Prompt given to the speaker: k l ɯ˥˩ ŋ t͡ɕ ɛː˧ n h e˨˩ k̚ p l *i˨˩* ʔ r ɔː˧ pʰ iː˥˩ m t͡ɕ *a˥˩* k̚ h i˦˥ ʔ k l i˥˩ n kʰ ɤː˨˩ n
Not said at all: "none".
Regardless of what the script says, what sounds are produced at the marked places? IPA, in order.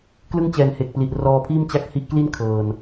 i˨˩, a˥˩

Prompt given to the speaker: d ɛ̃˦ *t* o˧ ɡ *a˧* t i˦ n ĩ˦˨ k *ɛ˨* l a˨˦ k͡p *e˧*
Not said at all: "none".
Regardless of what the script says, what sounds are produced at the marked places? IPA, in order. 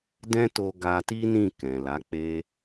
t, a˧, ɛ̃˨, e˦

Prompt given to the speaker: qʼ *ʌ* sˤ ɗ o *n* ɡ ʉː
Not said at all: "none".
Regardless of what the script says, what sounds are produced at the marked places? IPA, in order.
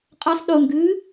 ʌ, n

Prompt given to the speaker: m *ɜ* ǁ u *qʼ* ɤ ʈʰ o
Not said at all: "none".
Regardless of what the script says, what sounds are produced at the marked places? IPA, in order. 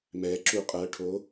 ɛ, qʼ

